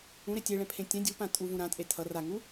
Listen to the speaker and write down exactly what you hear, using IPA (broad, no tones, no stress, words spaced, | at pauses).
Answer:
ũɾe tʲeɭɛ̃pʰẽ tʲɛ̃ dʲupã tʼuvũ ɾãtʼe tʰʌ raŋu